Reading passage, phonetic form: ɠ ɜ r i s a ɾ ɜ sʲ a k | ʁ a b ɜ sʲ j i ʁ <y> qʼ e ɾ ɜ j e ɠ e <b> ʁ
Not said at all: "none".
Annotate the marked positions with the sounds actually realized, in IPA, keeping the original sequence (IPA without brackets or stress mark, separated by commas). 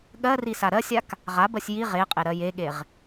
e, none